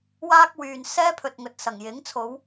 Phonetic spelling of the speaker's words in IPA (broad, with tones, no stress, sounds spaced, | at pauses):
w aː˥ k̚ w yː˨ n s ɛː˥ pʰ ɵ˨ t̚ ŋ ɵ˨ t̚ s ɐ˨˩ ŋ j ɪ˨˥ ŋ t͡sʰ o˨˧ w